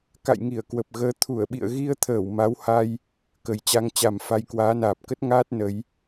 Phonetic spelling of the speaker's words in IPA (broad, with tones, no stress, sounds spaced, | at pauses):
k a̰˧˨ j ŋ i˧˩ ə̯ k w ə˨˩ p̚ ɣ əː˨˦ t̪ʰ u˧˩ ə̯ ɓ ḭ˧˨ ə̯ ɣ i˧ ə̯ t̪ʰ əː˧˩ w m a˨˦ w h a˧ j | k ə˨˩ j t͡ɕ a˧ ŋ t͡ɕ a˨˩ m f a˧ j k w aː˨˦ n aː˨˩ p̚ k ə˦˥ t̚ ŋ aː˦˥ t̚ n ə˨˦ j